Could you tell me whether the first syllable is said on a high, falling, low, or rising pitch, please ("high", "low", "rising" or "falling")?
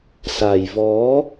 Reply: low